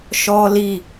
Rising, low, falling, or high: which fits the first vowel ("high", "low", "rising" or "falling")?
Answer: high